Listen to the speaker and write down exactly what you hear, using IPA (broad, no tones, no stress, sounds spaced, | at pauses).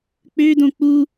k͡p ø d õ k͡p u